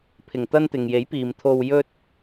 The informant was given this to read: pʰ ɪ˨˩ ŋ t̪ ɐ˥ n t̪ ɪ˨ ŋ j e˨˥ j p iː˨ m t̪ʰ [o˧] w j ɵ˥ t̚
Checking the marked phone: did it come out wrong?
no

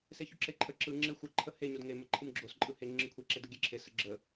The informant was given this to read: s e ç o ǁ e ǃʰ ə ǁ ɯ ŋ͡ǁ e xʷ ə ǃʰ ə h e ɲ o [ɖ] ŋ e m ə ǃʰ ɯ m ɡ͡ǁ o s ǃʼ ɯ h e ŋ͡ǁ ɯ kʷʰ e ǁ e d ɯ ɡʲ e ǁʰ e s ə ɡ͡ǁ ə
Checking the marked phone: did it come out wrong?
yes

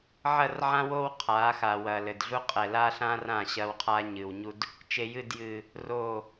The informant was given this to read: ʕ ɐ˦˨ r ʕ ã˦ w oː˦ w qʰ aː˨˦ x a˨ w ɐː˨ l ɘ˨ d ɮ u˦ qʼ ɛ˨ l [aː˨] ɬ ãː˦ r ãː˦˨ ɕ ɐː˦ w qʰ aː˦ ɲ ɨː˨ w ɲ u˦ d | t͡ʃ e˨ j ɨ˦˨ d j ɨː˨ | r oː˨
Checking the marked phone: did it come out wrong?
yes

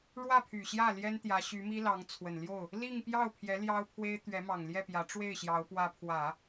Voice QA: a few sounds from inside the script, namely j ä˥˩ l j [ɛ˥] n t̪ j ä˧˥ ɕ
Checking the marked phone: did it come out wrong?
no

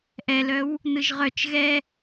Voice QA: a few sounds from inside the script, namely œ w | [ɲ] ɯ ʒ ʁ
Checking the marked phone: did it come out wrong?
yes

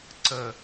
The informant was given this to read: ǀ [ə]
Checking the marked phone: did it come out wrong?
no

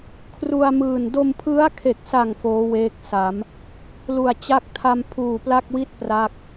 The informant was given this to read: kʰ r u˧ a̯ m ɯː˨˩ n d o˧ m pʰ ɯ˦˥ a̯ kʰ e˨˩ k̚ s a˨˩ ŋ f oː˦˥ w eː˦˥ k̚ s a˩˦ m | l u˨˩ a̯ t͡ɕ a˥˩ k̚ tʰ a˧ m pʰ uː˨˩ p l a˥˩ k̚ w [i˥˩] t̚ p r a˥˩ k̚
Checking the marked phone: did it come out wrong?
no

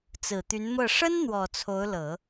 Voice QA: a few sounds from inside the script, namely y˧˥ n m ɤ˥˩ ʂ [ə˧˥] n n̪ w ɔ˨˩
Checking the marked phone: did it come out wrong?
yes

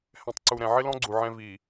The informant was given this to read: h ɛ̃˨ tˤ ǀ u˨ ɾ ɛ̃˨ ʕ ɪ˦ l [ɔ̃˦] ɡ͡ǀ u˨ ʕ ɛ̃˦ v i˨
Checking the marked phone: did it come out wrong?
no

